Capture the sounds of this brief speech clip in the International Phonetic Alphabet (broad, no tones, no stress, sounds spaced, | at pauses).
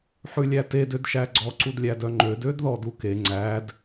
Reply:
ħ ʉ lʲ æ t e d ø d ʃ æ ɡ͡ǀ ɔ ǀ u d lʲ æ d œ ŋ͡ǃ ø d ø d ð ɔ d u k e ŋ͡ǀ æ d